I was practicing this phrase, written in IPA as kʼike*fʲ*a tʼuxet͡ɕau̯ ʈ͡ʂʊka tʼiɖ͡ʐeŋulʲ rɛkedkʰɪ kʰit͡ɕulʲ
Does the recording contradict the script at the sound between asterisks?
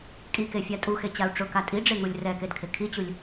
no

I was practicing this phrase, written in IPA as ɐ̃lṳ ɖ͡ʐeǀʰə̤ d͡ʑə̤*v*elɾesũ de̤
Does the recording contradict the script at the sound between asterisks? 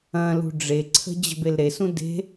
yes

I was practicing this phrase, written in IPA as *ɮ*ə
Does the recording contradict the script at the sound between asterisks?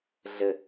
no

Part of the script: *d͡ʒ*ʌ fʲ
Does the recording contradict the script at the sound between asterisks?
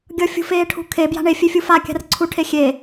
yes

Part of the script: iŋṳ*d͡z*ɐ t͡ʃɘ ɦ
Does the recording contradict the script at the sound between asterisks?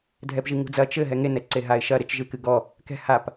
no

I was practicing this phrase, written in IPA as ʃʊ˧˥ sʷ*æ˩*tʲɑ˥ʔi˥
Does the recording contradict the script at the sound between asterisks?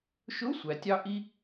yes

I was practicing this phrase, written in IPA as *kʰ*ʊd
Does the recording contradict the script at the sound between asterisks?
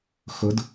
yes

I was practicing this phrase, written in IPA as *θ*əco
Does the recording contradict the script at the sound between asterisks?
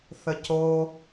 no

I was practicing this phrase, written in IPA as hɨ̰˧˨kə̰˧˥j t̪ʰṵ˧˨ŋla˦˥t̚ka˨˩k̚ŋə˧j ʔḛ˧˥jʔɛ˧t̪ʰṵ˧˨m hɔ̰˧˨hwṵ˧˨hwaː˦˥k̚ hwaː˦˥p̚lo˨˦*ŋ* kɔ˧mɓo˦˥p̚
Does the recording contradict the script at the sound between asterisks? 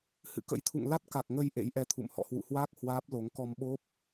no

